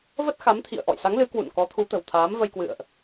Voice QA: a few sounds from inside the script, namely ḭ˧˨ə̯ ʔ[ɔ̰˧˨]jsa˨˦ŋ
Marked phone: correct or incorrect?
correct